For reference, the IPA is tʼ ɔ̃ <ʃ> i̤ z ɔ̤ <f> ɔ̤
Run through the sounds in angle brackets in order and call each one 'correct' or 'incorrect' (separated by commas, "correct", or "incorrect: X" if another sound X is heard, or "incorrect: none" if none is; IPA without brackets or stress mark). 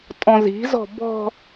incorrect: z, incorrect: b